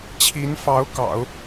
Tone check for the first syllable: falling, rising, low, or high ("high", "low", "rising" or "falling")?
rising